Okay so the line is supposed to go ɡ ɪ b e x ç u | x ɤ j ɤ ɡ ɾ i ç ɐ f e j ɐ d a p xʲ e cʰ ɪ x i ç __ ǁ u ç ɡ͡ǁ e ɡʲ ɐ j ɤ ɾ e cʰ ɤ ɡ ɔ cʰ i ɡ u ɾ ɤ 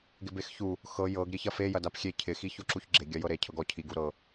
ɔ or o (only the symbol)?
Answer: o